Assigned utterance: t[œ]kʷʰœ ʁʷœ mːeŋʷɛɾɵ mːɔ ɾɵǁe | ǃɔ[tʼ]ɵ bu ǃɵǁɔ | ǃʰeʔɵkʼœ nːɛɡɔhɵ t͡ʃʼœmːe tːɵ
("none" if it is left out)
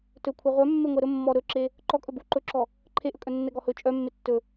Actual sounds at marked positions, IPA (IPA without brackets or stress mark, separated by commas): ɵ, kʼ